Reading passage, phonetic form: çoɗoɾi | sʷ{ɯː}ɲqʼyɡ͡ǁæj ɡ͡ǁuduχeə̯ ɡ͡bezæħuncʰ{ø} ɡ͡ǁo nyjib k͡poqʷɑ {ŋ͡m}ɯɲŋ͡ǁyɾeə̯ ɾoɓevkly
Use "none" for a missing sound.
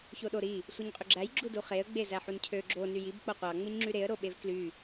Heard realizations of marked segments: ɯ, ø, ŋ͡m

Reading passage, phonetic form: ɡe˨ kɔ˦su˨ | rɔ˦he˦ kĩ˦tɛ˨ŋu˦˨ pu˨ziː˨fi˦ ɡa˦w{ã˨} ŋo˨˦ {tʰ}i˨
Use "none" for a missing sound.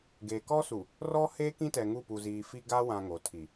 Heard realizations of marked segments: ã˨, tʰ

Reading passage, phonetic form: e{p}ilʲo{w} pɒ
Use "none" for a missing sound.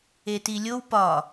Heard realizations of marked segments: t, w

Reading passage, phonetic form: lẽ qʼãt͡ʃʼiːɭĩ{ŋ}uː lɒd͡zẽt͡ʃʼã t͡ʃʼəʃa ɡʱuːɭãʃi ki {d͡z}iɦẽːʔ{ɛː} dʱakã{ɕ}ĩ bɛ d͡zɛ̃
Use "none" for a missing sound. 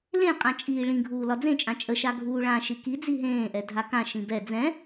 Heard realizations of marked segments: ɡʱ, d͡z, ɛ, ʃ

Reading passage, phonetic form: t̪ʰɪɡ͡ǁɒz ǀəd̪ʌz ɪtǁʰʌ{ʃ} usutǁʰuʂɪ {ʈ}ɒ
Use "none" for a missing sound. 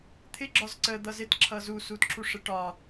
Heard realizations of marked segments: z, ʈ

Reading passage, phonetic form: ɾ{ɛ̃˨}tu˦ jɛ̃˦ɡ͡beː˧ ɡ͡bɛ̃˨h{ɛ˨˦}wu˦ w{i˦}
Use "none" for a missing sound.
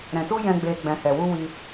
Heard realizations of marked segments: ɛ̃˨, ɛ˨, i˧

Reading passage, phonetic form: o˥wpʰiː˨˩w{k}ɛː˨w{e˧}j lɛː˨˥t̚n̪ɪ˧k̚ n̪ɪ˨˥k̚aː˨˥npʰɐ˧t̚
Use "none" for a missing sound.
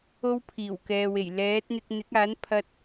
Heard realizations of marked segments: k, e˨˩

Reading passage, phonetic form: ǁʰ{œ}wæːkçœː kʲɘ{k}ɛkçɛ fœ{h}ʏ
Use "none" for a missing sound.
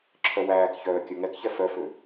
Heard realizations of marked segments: œ, ŋ, f

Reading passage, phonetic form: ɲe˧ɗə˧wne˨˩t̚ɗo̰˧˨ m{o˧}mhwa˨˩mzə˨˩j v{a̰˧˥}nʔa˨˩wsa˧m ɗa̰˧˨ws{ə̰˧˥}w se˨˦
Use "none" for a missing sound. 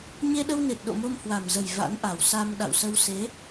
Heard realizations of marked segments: o˧, a̰˧˥, ə˧

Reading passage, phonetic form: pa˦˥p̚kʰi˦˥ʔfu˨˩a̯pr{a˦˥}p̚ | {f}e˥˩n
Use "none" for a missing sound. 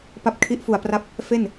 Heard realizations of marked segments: a˦˥, f

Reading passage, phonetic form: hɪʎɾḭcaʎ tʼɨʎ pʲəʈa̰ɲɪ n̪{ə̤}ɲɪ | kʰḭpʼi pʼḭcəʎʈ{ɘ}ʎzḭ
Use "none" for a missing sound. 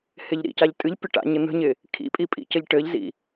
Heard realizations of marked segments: ə̤, ɘ

